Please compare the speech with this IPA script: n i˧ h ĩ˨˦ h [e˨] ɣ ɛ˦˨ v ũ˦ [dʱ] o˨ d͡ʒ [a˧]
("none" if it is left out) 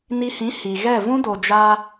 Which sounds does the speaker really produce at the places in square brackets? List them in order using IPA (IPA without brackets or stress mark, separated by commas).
i˨, d, a˧